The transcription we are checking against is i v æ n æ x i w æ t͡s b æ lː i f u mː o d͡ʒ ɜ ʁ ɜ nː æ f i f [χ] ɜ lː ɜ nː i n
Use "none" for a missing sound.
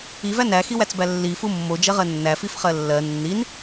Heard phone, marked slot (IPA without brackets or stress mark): χ